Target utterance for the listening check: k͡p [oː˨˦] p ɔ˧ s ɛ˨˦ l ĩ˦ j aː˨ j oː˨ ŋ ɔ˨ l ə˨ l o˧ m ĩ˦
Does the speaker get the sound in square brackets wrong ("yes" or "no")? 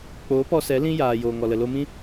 no